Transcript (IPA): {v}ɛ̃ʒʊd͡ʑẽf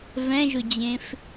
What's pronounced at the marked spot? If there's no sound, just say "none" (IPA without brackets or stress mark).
v